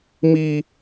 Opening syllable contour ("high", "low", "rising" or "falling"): high